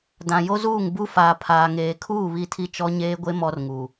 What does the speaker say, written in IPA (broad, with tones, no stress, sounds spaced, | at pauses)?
d ã˨ j o˦ z uː˦˨ ŋ b u˦ f aː˨ pʰ aː˨ ŋ eː˨ kʰ uː˦˨ β i˦ tʰ i˦ t͡ʃ ɔ˦ ɲ eː˦ ɡʷ e˦ m ɔ˦ r ŋ u˨